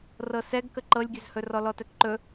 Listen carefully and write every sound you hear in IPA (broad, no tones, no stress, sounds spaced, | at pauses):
r ɤ s ɛ ɡ k ə ǃ ɤ lʲ ɡʲ ɵ z h ɵ r ɔ l ɔ t ɛ k ǃ ɵ